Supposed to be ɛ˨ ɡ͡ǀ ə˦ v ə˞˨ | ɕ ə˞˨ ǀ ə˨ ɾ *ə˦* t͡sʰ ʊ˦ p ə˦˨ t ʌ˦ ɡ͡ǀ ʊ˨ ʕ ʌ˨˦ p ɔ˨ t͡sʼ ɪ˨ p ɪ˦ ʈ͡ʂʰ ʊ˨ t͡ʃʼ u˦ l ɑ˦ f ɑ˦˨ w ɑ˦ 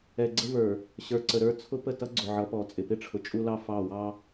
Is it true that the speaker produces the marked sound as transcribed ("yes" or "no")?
no